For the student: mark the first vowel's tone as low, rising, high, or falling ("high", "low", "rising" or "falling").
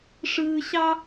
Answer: high